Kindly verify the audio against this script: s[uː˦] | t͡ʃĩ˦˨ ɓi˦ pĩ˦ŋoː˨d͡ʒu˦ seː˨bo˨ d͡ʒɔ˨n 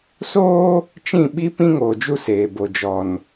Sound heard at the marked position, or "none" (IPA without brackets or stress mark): oː˦